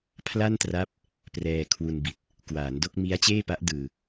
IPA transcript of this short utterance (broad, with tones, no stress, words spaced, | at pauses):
pʰla˥˩ntra˦˥p̚ | prɛː˧kʰwu˧nbi˨˩t̚ | kwaː˩˦ndo˥˩k̚ mi˦˥a̯t͡ɕeː˥˩pa˦˥ʔ dɯː˧